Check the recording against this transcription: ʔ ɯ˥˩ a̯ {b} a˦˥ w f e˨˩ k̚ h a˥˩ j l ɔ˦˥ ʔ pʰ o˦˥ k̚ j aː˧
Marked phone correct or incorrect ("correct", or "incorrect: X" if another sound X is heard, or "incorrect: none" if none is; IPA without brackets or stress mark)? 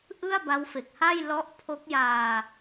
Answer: correct